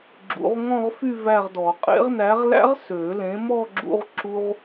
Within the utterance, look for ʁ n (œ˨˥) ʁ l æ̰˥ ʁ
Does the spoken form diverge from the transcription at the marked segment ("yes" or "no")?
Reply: yes